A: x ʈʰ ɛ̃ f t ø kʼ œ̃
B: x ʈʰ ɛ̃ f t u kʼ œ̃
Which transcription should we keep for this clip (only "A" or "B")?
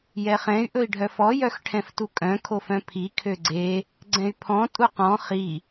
B